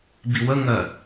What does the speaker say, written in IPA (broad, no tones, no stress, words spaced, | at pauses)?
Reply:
biwəŋɜ